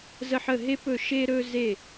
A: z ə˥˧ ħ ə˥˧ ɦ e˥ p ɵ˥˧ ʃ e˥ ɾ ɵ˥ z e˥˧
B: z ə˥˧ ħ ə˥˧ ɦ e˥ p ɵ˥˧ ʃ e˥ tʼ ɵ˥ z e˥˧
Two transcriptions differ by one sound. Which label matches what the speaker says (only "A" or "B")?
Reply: A